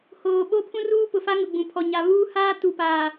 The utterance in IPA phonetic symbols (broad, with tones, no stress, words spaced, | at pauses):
hoː˨ ɓo˦ pʰũ˦ruː˦pʊ˨fa˦ ŋʊ˨ɡ͡bũ˨pʰɔ˨ ɲa˨ βuː˦haː˦ tu˨paː˨